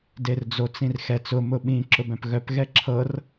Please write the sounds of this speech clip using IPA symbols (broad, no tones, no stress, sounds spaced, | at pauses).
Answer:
d e r d͡z o t͡s ĩ r x ɛ t͡s ʊ m ʊ ɓ ĩ ǁ ʊ b œ̃ p ɣ œ p ɣ ɛ ǁʰ ɤ r